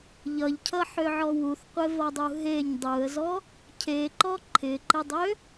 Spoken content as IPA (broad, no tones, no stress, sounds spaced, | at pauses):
ʎ ʌ ʎ cʰ ʌ ħ ø ʕ ɔ w u θ qʷ e v ʌ dˤ u ɦ e ɲ dˤ u ə̯ z ɔ | cʰ e ǃ ɔ ǃʰ ɪ ǃ ɪ dˤ ø